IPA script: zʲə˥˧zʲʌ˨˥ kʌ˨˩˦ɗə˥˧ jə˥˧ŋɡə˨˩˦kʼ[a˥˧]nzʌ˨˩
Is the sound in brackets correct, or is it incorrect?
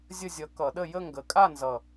correct